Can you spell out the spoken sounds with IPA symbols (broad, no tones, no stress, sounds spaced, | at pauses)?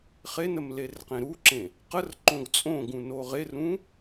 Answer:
χ e n ə m l e r q ẽ ɾ u ǁ ẽ | q ə r ǃ õ ɡ t͡sʼ õ ɡ ũ n o ʁ e r ũ